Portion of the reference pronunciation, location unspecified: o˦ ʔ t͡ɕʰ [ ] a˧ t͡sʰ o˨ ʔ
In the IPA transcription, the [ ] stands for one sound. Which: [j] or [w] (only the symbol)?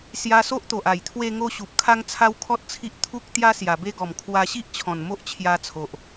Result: j